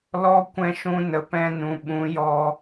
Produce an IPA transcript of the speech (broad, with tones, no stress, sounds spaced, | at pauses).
l ɔ˦ kʷ ɛ̃˧ ʃ ũ˧ n ə˨ p ɛ̃˧ n ũ˨ ɓ ũ˨˦ j ɔ˧